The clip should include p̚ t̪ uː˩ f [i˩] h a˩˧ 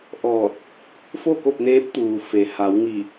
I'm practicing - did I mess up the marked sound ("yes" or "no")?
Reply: yes